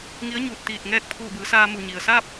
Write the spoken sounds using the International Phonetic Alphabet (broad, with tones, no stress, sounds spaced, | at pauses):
ŋ i˧˥ ə̯ ɲ uː˧˩ t̚ t̪ iː˧˩ t̚ ŋ ɛː˥˨ k̚ pʰ uː˧˩ b ɯː˩˧ s aː˧ m u˧˩ ɲ i˩ ə̯ s aː˥˨ p̚